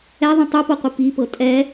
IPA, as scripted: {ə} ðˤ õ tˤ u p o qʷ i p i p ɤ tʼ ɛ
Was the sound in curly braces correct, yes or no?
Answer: no